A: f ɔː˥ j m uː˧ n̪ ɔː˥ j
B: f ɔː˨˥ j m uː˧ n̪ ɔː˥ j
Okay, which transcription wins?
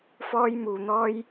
A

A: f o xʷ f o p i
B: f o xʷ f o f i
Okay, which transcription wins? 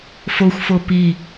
A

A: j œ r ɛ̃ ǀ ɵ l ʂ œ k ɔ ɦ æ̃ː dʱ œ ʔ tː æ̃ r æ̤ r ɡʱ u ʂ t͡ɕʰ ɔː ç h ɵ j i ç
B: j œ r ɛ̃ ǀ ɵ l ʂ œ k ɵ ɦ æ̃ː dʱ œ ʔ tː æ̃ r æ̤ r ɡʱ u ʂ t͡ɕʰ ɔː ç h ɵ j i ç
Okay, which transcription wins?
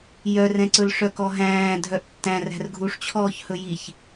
A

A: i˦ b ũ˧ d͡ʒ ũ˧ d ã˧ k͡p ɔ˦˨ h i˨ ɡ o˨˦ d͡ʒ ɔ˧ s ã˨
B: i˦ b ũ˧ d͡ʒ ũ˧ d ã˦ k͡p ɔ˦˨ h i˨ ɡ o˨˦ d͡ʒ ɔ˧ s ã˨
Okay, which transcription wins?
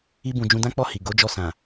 B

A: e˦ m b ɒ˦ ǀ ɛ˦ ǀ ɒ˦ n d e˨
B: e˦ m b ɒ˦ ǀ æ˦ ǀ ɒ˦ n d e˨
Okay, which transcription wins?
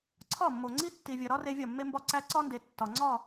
B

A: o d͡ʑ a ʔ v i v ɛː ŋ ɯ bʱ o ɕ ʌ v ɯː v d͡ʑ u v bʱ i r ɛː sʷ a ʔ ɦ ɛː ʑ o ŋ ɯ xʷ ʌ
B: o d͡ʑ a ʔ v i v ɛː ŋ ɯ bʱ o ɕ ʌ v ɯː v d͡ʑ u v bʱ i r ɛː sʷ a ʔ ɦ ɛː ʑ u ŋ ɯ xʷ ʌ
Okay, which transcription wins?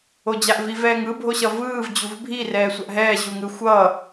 B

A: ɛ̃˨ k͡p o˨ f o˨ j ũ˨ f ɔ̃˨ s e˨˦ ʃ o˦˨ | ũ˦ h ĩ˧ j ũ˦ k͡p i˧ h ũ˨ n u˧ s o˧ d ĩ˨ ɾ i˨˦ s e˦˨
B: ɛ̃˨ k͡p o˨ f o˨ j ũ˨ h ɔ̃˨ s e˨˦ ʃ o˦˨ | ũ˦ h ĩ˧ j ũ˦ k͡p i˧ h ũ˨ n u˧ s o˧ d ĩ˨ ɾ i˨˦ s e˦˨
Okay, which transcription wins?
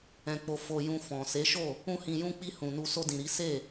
A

